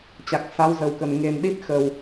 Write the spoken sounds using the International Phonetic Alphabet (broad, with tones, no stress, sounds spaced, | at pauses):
t͡ɕ a˨˩ k̚ s a˨˦ w z ə˨˩ w k ə˨˩ n ŋ e˨˩ n ɗ i˦˥ t̚ x ə˨˩ w